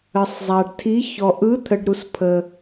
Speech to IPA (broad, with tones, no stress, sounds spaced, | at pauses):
ə˨ sˤ zˤ a˨ ɖ tʰ i˧˥ ç ɔ˨ ʔ ɯ˧˥ t̪ʰ ə˨ ɖ ɾ u˨ s pʰ ə˨